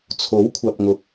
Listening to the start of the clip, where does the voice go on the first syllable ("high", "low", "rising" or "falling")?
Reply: rising